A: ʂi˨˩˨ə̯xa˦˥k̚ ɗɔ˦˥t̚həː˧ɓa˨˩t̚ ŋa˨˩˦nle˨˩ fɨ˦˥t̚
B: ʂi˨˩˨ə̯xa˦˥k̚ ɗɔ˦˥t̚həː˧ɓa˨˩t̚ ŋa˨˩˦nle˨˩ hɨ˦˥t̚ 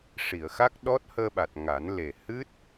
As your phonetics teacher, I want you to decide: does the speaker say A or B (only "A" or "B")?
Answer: B